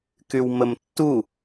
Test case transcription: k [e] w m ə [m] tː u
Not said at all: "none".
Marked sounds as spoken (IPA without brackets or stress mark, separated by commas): y, m